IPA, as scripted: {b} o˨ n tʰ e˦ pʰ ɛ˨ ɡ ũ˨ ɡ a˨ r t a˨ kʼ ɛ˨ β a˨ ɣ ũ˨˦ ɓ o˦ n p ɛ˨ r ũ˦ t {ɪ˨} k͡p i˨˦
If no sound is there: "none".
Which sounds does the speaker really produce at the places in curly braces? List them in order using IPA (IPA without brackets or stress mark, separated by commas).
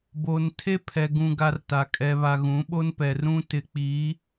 b, ɪ˨